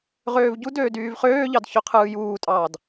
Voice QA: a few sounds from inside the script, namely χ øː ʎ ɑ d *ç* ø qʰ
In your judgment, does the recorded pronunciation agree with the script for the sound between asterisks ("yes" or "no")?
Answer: yes